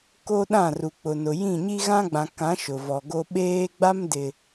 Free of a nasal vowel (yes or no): no